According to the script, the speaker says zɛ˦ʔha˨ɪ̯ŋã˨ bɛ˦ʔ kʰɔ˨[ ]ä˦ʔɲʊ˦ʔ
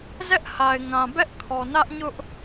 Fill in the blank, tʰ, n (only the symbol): n